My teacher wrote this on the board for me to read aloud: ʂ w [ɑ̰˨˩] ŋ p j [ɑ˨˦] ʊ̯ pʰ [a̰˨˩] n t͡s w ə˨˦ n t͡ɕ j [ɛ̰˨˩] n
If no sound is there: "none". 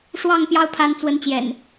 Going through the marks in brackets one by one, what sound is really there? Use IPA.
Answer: ɑ˥˨, ɑ˦, a˨˦, ɛ̰˨˩

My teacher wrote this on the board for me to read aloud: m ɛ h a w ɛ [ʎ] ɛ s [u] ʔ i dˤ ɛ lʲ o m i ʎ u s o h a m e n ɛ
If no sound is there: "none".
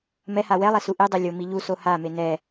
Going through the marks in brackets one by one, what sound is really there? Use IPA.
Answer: lˠ, u

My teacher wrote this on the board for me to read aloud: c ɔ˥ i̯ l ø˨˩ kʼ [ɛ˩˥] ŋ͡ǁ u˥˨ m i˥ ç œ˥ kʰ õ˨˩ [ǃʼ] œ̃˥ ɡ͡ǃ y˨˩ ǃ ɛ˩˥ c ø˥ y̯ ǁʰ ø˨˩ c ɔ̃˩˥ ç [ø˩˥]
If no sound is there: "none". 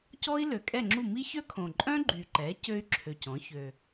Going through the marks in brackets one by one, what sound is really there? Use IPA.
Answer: ɛ˥˨, ǃʼ, ø˨˩

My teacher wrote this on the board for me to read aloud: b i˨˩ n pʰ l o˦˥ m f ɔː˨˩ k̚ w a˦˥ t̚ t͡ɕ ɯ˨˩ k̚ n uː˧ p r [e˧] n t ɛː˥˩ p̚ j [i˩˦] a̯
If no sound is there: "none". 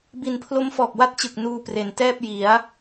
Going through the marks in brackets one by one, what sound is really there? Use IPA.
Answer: e˩˦, i˩˦

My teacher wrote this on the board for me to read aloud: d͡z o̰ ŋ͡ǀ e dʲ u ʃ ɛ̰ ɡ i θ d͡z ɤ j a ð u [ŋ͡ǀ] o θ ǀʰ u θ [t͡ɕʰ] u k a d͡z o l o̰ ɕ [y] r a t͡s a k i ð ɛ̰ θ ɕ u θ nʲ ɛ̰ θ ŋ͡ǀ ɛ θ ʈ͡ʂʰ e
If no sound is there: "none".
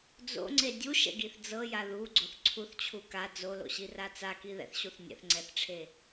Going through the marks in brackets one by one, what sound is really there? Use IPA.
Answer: ɡ͡ǀ, t͡ɕʰ, i

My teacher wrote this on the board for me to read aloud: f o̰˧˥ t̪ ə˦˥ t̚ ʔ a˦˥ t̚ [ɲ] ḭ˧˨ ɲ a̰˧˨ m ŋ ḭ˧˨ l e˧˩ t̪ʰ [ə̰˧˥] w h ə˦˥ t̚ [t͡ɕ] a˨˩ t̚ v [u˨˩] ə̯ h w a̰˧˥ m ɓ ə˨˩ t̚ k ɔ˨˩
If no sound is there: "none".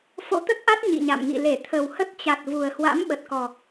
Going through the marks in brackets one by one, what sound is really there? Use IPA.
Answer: ɲ, ə˨˩, t͡ɕ, u˨˩

